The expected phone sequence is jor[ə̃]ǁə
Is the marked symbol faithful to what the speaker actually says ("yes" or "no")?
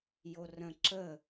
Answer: yes